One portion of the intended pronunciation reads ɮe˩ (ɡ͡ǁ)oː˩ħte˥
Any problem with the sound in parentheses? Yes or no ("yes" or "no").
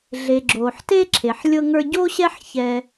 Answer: no